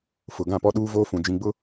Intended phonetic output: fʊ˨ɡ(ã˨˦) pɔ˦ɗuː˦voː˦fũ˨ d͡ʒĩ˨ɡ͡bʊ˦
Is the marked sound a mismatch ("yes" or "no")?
yes